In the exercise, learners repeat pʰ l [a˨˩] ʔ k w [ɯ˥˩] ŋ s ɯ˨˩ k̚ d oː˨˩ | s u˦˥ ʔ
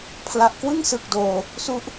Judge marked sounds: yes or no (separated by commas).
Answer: yes, yes